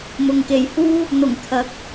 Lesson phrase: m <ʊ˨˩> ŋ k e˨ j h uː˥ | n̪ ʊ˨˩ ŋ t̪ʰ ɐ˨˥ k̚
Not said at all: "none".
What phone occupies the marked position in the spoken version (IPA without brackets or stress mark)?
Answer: ʊ˨